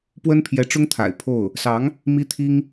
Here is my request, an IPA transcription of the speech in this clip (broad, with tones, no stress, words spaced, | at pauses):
pwə˥npʰjɛ˧˥ʈ͡ʂʊ˥ŋt̪ʰa̰˨˩ɪ̯ pʰo˥˩ʊ̯ | sɑ˧˥ŋ | mi˥t̪ʰi˥ŋ